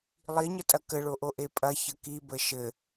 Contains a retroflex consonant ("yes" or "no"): yes